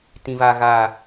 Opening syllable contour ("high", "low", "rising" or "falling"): high